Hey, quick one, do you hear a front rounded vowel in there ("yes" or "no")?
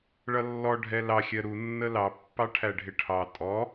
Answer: no